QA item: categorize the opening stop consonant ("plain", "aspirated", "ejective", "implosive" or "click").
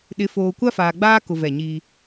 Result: implosive